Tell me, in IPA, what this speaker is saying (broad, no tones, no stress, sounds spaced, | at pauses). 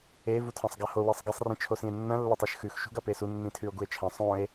e v u tʰ ã sˤ ɡ a h o w e sˤ ɡ e sˤ r ĩ t͡ʃʰ o s ĩ e̯ nː ɐ̃ lː ɐ tˤ ɨ ʃ x ʉ x ʃ ṳ ɡ ɐ p e s u nː ĩ tʰ ʉ o̯ ɡ u e̯ t͡ʃʰ ɐ̃ sˤ õ e̯